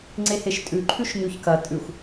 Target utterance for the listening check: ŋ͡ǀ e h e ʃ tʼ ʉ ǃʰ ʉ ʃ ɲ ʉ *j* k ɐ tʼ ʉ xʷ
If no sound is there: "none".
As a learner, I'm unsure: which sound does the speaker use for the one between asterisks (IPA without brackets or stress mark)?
ç